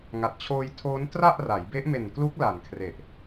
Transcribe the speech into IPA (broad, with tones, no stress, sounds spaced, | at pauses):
ŋ a˨˩ t̚ t͡ɕʰ oː˧ j tʰ oː˦˥ n t r a˥˩ ʔ r a˩˦ j b e˦˥ ʔ m e˨˩ n k l u˦˥ k̚ l a˨˩ n kʰ r e˨˩ ʔ